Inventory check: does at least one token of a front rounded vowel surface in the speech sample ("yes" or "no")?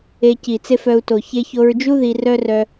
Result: yes